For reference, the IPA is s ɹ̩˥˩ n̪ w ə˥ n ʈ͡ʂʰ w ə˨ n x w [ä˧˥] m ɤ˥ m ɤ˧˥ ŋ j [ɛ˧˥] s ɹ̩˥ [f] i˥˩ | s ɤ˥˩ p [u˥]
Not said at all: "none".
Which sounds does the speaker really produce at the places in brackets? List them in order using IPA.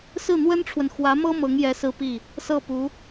ä˧˥, ɛ˧˥, p, u˧˥

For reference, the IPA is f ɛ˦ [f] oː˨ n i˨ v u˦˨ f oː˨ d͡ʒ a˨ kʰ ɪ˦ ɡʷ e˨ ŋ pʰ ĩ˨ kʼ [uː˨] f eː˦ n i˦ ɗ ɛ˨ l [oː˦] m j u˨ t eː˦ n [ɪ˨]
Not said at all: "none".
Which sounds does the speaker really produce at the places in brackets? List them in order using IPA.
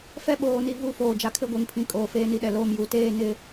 ɓ, oː˨, oː˦, ɪ˦

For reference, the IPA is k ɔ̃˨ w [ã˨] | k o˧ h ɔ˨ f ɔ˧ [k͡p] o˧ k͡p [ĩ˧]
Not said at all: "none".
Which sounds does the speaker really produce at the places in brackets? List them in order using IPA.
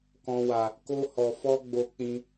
a˨, ɡ͡b, ĩ˧

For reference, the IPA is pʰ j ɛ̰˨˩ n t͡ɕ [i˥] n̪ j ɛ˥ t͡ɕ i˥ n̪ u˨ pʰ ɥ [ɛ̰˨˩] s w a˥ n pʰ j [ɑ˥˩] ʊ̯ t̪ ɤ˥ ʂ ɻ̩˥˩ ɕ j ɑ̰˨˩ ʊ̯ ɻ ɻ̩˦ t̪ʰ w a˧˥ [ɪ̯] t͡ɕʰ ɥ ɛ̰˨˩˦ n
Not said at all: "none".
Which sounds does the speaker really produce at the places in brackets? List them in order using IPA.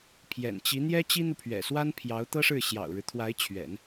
i˧˥, ɛ̰˨˩, ɑ˧˥, ɪ̯

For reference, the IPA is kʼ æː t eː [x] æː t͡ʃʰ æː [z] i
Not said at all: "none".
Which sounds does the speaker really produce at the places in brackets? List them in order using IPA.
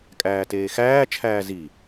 x, z

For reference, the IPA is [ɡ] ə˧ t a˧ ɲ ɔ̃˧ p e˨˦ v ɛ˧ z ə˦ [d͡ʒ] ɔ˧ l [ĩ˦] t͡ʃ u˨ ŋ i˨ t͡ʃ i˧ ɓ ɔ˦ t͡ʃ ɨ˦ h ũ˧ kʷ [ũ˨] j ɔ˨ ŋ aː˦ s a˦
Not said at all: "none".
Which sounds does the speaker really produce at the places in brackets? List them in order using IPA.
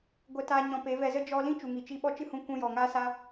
ɡʷ, d͡ʒ, ĩ˦, ũ˧

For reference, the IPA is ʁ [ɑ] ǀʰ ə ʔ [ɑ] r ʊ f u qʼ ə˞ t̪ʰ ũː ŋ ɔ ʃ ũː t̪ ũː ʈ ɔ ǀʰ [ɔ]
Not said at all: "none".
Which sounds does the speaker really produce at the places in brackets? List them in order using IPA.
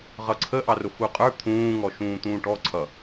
ʌ, ɑ, ʌ

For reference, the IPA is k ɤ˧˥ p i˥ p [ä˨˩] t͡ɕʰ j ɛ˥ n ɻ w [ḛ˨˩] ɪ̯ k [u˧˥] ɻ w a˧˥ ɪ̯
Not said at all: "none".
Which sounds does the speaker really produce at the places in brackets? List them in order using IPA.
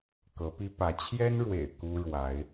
ä˧˥, ḛ˨˩, u˥

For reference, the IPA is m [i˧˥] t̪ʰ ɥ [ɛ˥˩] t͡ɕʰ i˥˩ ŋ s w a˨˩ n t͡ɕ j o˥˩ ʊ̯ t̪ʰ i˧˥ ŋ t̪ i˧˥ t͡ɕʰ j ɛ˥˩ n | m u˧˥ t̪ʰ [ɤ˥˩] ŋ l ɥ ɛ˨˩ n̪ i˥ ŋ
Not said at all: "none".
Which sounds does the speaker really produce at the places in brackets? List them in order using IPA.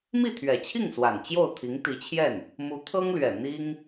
i˥˩, ɛ˨˩, ɤ˥

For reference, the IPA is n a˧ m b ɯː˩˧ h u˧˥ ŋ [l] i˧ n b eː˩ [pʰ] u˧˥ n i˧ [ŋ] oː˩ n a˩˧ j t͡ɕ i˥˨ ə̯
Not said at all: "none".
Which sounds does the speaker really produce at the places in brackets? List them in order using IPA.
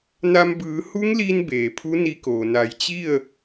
l, pʰ, k

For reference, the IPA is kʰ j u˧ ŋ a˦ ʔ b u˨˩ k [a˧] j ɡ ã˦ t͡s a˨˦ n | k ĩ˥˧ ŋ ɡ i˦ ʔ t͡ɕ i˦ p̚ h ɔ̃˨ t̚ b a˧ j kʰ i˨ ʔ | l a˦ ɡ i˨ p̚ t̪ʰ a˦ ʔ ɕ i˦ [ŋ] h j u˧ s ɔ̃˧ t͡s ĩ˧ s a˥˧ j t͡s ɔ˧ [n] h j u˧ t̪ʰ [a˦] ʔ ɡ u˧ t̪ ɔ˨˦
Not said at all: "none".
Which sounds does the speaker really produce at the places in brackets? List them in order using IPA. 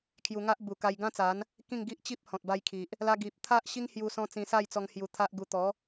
a˧, ŋ, ŋ, a˦

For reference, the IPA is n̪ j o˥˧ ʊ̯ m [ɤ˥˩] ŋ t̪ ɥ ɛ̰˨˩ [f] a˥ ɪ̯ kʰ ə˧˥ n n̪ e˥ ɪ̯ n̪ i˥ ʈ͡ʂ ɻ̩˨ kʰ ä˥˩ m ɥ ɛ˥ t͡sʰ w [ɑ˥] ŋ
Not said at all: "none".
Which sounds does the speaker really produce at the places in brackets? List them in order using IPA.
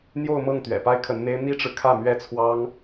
ɤ˥˩, p, ɑ˥

